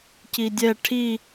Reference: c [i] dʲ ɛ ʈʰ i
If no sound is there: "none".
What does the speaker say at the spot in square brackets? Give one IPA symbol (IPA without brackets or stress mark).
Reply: i